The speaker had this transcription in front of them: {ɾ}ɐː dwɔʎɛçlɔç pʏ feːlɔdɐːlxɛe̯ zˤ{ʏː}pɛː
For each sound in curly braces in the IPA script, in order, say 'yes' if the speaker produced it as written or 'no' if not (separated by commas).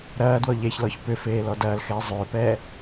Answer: yes, yes